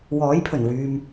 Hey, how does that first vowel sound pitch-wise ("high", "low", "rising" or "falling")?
rising